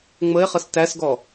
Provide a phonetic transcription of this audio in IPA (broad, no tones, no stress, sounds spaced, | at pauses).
ŋ͡m ə e̯ χ ə s t æ s ɡ ɔ